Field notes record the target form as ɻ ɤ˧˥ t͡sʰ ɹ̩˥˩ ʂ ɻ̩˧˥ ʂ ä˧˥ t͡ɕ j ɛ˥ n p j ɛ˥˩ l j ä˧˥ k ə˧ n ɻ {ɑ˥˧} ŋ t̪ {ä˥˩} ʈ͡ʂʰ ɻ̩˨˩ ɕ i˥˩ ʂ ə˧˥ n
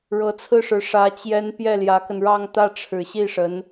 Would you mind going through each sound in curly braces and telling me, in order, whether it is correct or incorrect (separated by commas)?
correct, correct